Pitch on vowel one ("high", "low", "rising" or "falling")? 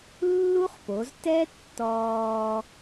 high